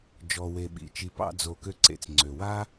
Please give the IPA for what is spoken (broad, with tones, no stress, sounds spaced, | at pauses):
d͡ʒ ɔ˨ w e˨ ɓ ḭ˩ t͡ʃ i˨ p ɑ̰˨ d͡z o˩ k ø˨ ǀ ḛ˩ t͡s ŋ͡ǀ ø˩ w a˥